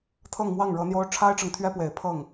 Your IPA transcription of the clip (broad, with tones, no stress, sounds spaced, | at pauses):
t̪ʰ ɤ˥˧ ŋ m w ɑ˥˩ ŋ ɻ ɤ˧˥ n̪ j o˥ ʊ̯ ʈ͡ʂʰ a˥ ɪ̯ ʈ͡ʂ ɤ˨ ŋ t̪ʰ ɥ ɛ˥ p w e˨˩ ɪ̯ pʰ ɤ˥˩ ŋ